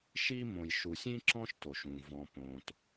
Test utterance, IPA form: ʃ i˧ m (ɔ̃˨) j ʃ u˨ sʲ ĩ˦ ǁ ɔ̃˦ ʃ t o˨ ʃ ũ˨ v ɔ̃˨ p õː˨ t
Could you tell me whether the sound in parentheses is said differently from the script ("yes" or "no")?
yes